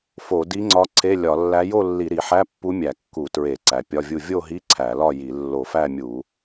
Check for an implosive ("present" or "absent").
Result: absent